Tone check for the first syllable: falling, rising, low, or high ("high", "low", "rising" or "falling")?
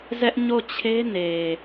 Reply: high